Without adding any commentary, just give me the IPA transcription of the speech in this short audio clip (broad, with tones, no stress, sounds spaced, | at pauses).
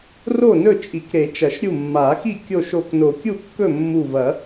r o˥˩ n ɵ˥˩ t͡ʃʼ i˨˩˦ k ɾ e˨˩˦ t͡ʃ ɐ˨˩˦ ʃ ɾʲ u˥˩ mː a˨˩˦ x i˥˩ kʲ o˥˩ ʃ o˧˩ k n o˨˩˦ kʲ u˥˩ kː ɵ˥˩ mː u˧˩ v ɐ˨˩˦